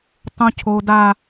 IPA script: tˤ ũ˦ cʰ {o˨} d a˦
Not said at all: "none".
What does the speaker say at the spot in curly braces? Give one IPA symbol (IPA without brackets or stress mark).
o˦